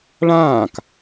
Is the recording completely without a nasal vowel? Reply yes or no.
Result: no